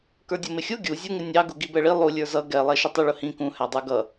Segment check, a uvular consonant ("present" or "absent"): absent